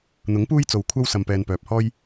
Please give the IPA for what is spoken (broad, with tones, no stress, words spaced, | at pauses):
n̪ʊ˨˥ŋpuː˥j t͡so˨wkʷʰɐ˥w sɐ˧mpɛː˧npœː˨p̚ hɔː˥j